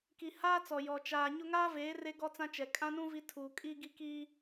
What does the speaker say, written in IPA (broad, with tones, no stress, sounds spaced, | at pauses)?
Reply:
k i˨ h aː˦ t͡s ɔ˨ j ɔ˨ t͡ʃ aː˨ ɲ ʊ˦ ŋ aː˦ v eː˨˦ r e˦ ɡ ɔ˦ t͡s ã˦ t͡ʃ ɛ˨ kʼ ã˦ n ũ˦ v i˦ tʰ uː˨ kʼ i˦ ɡ i˦ k i˦